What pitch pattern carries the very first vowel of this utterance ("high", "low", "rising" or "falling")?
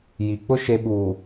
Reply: low